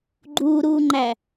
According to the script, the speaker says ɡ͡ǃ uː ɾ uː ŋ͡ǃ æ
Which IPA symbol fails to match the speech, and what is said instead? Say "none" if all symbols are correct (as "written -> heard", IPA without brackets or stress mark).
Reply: none